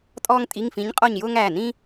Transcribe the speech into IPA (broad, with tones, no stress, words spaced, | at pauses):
tʼɔː˥ŋtʼi˧˥˧ŋfĩ˧˥ɲ qʼɔ˥˧ɲjʊː˥ŋæː˩˧˩ nĩ˥